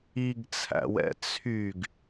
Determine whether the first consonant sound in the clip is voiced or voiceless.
voiced